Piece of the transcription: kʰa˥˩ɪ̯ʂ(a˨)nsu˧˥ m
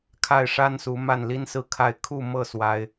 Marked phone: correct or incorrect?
incorrect